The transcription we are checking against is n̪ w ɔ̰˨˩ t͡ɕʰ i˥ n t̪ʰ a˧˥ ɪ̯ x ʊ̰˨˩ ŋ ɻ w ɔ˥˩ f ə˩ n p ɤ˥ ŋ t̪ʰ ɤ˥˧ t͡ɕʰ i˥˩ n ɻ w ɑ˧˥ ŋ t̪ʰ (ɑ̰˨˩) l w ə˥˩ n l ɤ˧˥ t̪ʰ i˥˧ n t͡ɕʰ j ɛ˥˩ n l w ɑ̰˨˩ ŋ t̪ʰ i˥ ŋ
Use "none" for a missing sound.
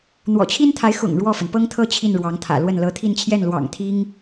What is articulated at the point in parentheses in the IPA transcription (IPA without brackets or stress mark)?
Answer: ä̰˨˩